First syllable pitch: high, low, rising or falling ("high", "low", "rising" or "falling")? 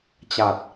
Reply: low